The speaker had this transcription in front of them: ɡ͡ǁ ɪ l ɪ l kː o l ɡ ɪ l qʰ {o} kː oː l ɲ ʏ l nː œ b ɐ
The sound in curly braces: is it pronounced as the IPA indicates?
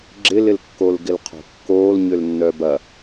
no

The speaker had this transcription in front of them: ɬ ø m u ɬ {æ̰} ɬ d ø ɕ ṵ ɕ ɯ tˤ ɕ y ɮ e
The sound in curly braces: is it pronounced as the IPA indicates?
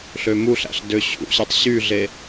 yes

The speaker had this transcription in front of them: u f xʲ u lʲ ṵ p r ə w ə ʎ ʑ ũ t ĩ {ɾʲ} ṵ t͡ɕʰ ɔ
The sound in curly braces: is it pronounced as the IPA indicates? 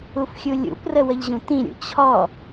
yes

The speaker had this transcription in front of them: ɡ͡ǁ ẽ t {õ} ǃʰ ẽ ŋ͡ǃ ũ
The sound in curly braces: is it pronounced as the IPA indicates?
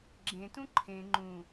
no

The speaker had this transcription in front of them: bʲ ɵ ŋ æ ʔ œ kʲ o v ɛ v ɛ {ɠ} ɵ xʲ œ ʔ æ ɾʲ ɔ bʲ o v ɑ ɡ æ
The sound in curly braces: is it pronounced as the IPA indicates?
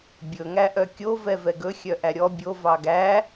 no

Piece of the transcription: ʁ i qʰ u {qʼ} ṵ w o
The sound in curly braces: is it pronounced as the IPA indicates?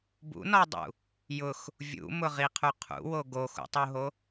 no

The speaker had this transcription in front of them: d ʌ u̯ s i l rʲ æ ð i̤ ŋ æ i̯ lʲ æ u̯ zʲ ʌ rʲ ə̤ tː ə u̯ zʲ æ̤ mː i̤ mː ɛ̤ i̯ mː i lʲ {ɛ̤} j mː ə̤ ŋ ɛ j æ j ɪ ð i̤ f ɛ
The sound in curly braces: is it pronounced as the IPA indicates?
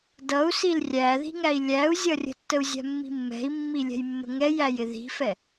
yes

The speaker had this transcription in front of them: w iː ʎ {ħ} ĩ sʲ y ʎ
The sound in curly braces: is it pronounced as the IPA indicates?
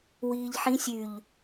yes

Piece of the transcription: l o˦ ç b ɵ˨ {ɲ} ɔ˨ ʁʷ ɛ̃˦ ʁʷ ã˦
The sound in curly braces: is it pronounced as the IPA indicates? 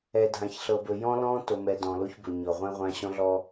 yes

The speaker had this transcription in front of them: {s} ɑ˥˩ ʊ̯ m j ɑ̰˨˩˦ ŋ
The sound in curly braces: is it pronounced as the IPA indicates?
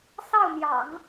yes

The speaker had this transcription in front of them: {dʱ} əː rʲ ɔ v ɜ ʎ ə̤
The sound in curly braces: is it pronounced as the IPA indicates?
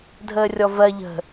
yes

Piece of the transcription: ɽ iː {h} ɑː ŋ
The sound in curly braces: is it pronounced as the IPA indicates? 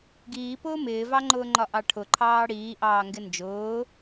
no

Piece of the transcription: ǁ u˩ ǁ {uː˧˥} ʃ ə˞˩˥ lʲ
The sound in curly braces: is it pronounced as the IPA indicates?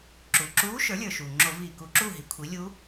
yes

